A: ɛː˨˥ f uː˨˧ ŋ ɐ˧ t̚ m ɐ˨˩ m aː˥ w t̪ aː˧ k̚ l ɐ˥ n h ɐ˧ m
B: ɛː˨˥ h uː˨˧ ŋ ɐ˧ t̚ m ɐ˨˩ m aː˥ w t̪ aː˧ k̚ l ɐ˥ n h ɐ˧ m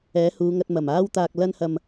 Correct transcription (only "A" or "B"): B